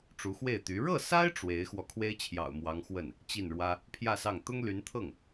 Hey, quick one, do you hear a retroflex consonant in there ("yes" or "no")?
yes